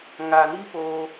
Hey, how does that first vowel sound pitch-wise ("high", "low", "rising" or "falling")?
low